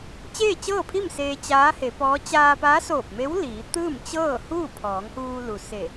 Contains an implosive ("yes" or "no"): no